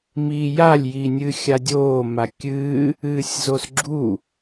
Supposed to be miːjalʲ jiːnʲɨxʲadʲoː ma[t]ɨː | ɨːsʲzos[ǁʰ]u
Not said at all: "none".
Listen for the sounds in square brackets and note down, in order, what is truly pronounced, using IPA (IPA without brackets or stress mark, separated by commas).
kʲ, ɡ͡ǁ